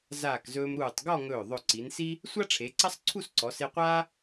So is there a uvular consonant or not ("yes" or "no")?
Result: yes